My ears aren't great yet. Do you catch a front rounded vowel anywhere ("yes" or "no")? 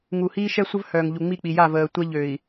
yes